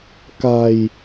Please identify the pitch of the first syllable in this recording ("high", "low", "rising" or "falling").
low